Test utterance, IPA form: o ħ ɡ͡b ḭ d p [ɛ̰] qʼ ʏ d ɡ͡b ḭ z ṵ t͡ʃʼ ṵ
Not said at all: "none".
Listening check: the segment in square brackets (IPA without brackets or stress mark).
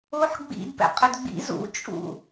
ɛ̰